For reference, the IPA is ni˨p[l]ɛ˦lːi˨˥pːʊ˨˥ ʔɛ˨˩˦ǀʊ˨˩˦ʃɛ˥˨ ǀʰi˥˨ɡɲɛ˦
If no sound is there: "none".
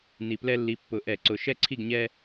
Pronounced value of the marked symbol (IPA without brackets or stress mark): l